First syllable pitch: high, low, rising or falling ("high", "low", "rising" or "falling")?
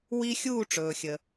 high